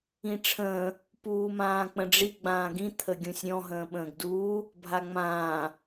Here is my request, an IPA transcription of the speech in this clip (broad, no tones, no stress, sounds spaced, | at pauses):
ĩ ʈ͡ʂʰ ə̃ː | p uː m ãː k͡p ə̃ ɖ͡ʐ i ɡ͡b ãː ɡ ĩ t̪ʰ ə ɡʲ ũ sʲ ɾʲ ɔ̃ ɦ ə̃ː ɓ ə̃ː ɡ d uː | bʱ a ŋ͡m ãː